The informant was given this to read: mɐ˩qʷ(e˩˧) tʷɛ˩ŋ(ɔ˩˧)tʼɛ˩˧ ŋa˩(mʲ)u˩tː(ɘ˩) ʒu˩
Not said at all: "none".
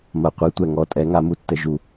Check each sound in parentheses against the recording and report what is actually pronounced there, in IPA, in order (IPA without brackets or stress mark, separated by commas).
e˩˧, ɔ˩˧, m, ɘ˩